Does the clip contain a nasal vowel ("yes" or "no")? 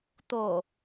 no